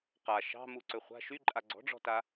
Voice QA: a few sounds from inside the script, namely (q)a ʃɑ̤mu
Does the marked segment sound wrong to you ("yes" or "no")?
no